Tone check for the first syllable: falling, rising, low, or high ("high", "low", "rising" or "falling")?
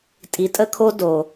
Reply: low